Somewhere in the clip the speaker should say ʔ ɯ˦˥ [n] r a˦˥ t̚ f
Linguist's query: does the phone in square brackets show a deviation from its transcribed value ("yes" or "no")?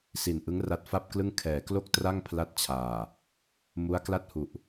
yes